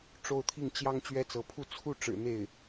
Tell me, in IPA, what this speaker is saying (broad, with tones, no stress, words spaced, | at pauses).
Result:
ʈ͡ʂo˥˧ʊ̯t̪ʰi˥˩ŋ t͡ɕjɑ˥ŋ t͡ɕɥɛ˥t͡sɤ˧˥pʰu˥˧ t͡sʰu˥˩ʈ͡ʂɻ̩˨˩ n̪e˥˩ɪ̯